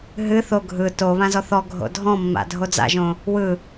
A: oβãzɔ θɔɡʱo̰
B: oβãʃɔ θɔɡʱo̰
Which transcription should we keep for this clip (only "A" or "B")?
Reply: A